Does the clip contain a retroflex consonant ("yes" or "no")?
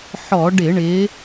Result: yes